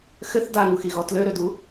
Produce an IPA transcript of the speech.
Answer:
xɘθ daŋuxiɣɔ tløɾødu

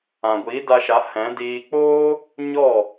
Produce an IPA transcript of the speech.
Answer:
ã˨ɡʷi˨˦ da˧ʃa˨˦hɛ̃˨˦diː˧ k͡poː˦ | ɲɔ˦˨

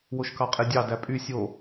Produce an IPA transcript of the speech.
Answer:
woʃkɑqʼedʲɑ dæpʼy sʲo

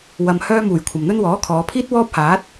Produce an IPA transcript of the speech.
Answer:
wɐ˨m hœː˧muː˨˩j kʷʰɐ˨mn̪ɵ˥n wɔː˨˥kʰɔː˨˧pʰiː˥t̚ wɔː˥p̚ haː˨˥t̚

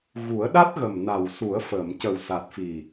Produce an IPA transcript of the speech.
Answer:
ɣu˨˩˦ə̯ɗa˦˥t̚ɣə˨˩m na˨˩wsu˨˩˦ə̯fəː˨˩˨m cə˨˩wsa˨˩t̚fi˨˩

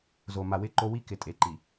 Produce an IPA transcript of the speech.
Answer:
zo˨ ma˨wɪ˦˨ǃo˦ wi˦kɪ˨ tʼe˨ǃi˨

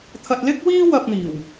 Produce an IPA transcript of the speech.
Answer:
t̪ʰɐ˧t̚lɪ˥k̚wiː˥ wɐ˧p̚n̪iː˨˩w

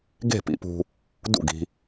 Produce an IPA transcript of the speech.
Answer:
ɡe̤˥˩pḭ˧pṳ˧ | dṵ˥˩ɡi̤˧

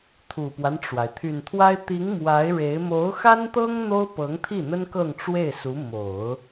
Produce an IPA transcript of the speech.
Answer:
t̪ʰu˨˩pwa˦nʈ͡ʂwa˩ɪ̯ t̪ʰy˨˩nt̪ʰwa˥ɪ̯ t̪i˧˥ŋ mwa˧˥ɪ̯ ɻe˧˥ɪ̯ mo˧˥ʊ̯xa˥nt̪ɤ˥ŋ n̪o˥ʊ̯pɤ˧˥ŋt̪ʰi˥˩n̪ə˥n kɤ˥˧ŋʈ͡ʂwe˥˩ɪ̯su˧˥ mo˨˩˦ʊ̯

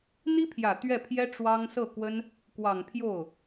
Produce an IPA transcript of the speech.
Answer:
n̪i˥pʰjä˨˩ t̪ɥɛ˥˩pʰjɛ˥ ʈ͡ʂwɑ˥ŋ sɤ˥˩kwə˥n | kwɑ˨˩ŋpʰjo˥˩ʊ̯

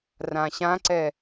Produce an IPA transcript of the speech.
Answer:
rãɕãǀɛ

